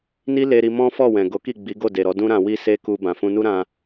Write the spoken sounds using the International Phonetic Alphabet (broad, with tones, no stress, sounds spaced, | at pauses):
n i˦ l e˧ ɾ i˧ m ɔ̃˦ f ɔ˦˨ w ɛ̃˨ ɡ o˨˦ k i˦˨ ɡ͡b i˨˦ ɡ o˦˨ d e˨ ɾ ɔ˨˦ d ũ˦ ɾ ã˧ w i˦ s e˦ k u˧ b ã˨ f ũ˧ n u˦ ɾ ã˧